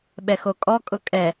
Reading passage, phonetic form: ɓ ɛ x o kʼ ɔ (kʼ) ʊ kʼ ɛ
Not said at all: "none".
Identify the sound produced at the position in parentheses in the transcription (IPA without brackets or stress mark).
kʼ